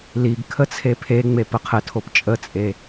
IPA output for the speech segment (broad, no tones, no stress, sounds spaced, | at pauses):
l i ɡ kʰ ə t͡sʰ e pʰ e ŋ͡m e p ə qʰ ə tʰ o p t͡ʃʼ ə t͡sʼ e